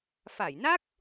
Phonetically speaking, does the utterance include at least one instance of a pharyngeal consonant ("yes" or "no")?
no